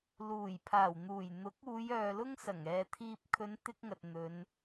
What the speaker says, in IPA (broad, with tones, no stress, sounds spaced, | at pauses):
l uː˨˩ j pʰ aː˨˩ w n̪ uː˨˩ j n̪ ʊ˨˥ k̚ uː˨˧ j œː˨ l ʊ˥ ŋ s ɐ˨˩ ŋ ɛː˨ t̪ʰ iː˨ p̚ kʰ ɵ˨˧ n t̪ ɪ˥ k̚ ŋ ɐ˨ t̚ n̪ ɵ˨˧ n